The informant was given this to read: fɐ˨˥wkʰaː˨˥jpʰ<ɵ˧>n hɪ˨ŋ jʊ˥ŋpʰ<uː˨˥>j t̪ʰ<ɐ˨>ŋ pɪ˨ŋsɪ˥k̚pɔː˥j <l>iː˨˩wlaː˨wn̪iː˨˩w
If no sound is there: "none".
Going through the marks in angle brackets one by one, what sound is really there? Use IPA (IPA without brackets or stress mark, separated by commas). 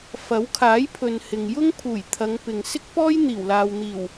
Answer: ɵ˨, uː˨˩, ɐ˨˧, n̪